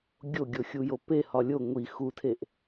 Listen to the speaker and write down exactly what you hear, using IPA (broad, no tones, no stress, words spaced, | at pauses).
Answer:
ɡʲoɡʲo xʲujopehɒ lʲo ŋʷi xutʰeʔ